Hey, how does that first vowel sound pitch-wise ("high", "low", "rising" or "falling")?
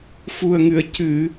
low